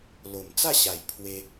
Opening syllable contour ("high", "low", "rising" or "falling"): low